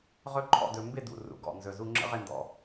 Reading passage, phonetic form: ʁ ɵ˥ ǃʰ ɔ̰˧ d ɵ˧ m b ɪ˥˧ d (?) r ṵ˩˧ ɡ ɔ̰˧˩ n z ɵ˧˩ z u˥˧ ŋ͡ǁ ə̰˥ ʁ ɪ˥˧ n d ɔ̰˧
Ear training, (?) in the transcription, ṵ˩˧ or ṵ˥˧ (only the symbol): ṵ˩˧